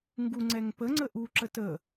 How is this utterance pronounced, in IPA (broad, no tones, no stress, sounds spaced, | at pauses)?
ŋ ɡ u ŋ͡ǀ ɛ ŋ p ə ŋ͡ǀ ə ʔ u ǁ ə t ə